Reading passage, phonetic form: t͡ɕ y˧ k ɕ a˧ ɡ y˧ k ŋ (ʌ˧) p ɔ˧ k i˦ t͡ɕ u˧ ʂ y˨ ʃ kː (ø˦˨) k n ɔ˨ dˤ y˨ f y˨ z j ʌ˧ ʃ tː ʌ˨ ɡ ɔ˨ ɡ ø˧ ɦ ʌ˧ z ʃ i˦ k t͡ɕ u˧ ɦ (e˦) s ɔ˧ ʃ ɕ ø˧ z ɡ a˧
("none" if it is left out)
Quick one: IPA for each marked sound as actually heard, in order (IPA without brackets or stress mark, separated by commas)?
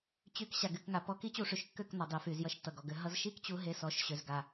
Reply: a˧, ø˦˨, e˦